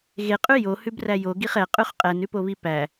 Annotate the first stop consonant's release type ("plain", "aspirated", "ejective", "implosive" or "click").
ejective